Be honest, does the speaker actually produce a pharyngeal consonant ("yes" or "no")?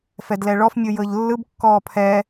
no